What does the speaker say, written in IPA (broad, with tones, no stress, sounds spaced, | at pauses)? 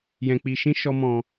j ɛ̃˧ k͡p i˧ ʃ ĩ˦ ʃ ɔ˦ m ɔ̃˧